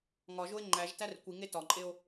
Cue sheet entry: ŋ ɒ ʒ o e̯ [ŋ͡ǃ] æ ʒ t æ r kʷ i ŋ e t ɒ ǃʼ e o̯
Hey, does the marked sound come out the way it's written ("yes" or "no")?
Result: yes